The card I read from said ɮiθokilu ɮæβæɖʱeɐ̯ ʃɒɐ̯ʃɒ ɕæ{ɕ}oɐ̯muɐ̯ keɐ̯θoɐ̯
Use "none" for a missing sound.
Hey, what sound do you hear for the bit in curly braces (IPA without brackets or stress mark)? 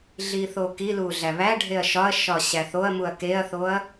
θ